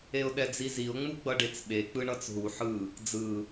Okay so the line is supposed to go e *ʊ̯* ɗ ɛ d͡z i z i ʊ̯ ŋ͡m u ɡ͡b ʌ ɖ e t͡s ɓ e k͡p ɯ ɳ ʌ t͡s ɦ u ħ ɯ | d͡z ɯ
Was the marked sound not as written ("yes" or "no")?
no